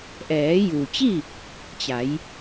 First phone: ʔ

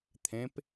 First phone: t̪ʰ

